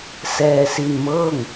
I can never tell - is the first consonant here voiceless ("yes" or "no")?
yes